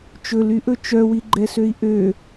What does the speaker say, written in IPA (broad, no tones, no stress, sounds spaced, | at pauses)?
t͡ʃ ɵ l y ʔ ɵ t͡ʃ œ w i ɡ͡ǃ ɛ s ø i̯ ʔ ø